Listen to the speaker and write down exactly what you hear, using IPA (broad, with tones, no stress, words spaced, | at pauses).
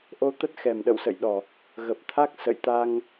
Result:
ʔo˧t̪ə˦˥t̚ xɛ˨˩mɗə̰˧˨wsə̰˧˨jɗɔ˨˩ | ɣə˨˩p̚t̪ʰa˦˥k̚ sə̰˧˨jt̪a˧ŋ